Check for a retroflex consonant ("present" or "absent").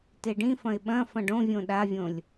present